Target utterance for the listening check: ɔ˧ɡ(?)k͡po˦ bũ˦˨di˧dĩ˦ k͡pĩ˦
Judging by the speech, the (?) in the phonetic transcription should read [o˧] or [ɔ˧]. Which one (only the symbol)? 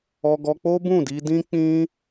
ɔ˧